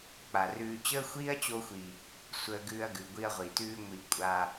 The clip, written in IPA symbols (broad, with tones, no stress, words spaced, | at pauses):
k͡pa˨rʉː˧ t͡ɕəː˦xʷiː˦ɐ̯t͡ɕo˧xʷi˨ | sʷəː˧ɡʉː˧ɐ̯ ɡʉ˨ɡʷi˧ɐ̯ʁʷi˨tʉː˦ ŋʷi˧kʷʼa˧